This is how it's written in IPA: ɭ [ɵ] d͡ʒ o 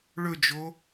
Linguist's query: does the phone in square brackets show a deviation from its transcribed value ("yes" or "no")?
no